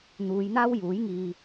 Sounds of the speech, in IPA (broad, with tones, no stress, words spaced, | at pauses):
n̪uː˨˧jn̪aː˥wjuː˨˥jŋiː˧